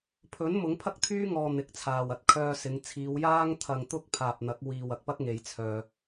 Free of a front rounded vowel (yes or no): no